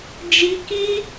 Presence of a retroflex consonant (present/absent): absent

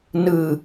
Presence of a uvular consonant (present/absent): absent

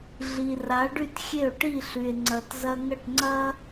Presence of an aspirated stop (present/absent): absent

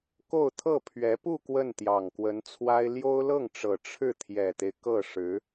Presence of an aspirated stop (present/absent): present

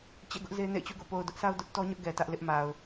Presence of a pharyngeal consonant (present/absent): absent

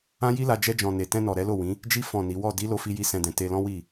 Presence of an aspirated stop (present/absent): absent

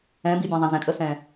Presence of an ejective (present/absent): present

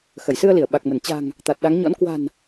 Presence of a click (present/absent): absent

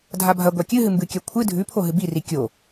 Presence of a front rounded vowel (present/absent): absent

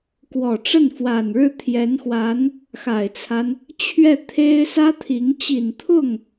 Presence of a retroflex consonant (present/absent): present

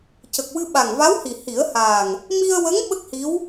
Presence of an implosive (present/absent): present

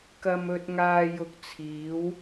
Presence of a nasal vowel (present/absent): absent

